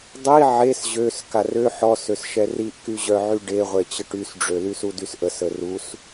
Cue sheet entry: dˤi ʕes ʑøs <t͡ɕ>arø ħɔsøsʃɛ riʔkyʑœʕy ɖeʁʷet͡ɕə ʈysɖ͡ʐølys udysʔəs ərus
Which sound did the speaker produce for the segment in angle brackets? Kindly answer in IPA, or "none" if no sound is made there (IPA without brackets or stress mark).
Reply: k